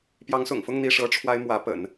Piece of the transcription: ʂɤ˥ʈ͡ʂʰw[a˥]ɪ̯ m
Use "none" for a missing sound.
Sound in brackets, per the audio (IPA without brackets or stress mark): a˥